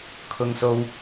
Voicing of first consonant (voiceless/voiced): voiceless